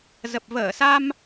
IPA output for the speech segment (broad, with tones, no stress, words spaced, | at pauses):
zə˨˩p̚ vəː˧˩sa˧m